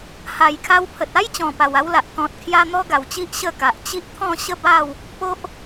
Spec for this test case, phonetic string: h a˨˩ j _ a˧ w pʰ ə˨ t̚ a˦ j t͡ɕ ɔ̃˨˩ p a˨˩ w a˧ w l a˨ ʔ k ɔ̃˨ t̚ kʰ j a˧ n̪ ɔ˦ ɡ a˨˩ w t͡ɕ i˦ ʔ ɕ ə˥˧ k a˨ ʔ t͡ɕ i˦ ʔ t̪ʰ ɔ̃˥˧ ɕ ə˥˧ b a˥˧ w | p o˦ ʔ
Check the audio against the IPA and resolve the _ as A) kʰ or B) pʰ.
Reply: A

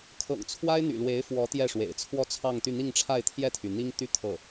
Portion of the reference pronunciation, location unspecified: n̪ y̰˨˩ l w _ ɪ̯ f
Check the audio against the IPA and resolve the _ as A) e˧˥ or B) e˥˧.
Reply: A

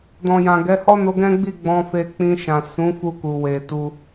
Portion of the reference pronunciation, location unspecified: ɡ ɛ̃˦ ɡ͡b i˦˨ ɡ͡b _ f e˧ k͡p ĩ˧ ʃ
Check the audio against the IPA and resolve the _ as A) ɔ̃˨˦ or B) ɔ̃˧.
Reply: B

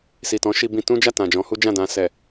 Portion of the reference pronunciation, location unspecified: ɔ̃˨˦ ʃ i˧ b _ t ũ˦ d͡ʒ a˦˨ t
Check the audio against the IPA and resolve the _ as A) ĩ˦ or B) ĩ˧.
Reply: B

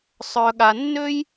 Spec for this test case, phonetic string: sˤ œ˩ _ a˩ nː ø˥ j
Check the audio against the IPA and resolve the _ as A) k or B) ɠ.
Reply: B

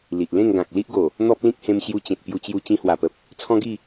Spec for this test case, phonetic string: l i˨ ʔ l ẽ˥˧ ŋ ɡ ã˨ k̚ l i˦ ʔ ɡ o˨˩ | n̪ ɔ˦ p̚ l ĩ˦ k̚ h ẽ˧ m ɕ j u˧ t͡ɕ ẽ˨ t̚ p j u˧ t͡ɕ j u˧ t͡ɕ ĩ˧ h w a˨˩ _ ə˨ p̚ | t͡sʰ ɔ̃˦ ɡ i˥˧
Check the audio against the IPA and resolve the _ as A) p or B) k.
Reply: A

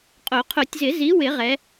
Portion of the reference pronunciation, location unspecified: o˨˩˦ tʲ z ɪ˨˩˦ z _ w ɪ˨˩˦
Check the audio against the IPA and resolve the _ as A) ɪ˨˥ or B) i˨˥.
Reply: B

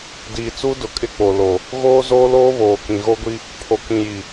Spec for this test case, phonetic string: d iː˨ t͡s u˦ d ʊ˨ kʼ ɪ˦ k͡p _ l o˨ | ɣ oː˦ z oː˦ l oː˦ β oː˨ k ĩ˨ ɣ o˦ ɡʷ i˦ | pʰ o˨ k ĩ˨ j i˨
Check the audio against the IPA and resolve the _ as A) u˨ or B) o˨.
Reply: B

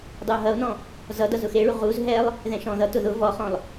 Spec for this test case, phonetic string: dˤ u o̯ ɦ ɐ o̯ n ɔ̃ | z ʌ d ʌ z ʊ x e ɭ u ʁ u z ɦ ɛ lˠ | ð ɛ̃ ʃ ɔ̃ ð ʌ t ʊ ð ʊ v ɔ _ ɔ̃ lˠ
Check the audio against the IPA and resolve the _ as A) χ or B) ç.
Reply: A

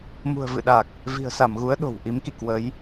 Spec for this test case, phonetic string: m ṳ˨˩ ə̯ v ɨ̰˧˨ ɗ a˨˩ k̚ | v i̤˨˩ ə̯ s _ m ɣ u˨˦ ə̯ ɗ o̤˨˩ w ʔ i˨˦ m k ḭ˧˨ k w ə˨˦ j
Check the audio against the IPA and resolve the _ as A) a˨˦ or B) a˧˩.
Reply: B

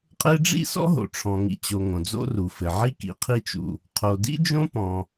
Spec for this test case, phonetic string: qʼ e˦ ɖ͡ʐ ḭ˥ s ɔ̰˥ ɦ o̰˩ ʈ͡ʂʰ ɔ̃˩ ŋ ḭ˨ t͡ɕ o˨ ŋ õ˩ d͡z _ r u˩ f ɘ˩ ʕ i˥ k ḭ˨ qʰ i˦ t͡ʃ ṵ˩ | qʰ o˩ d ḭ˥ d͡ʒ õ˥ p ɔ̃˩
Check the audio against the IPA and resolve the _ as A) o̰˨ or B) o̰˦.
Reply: B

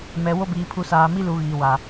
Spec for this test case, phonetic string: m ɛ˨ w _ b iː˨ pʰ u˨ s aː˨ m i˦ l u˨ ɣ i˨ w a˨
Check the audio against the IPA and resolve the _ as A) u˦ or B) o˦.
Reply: B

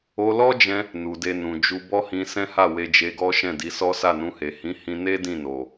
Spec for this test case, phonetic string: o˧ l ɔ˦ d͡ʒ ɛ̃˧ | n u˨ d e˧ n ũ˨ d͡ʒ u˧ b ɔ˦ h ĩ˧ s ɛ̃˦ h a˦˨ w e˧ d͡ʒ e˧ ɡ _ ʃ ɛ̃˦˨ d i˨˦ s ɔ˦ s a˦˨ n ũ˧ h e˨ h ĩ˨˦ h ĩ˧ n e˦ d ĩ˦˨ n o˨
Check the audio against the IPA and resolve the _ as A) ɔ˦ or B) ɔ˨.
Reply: A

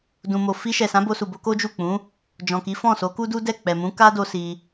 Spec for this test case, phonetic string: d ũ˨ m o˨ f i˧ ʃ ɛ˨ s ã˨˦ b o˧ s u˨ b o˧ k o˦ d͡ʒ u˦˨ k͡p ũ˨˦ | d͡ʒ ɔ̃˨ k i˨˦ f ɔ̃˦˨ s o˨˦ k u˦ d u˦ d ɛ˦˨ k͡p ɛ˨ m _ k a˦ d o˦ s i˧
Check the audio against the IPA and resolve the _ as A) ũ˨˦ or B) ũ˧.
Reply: A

